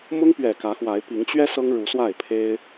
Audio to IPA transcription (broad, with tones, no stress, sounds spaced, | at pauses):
m ʊ˦ ŋ p ɥ ɛ˨˩ k ä˨˦ x w a˨˦ ɪ̯ p i˨˦ ŋ t͡ɕ ɥ ɛ˦ s ɤ˦ ŋ ɻ u˨˦ s w a˥˨ ɪ̯ pʰ e˦ ɪ̯